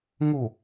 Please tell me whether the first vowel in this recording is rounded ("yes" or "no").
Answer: yes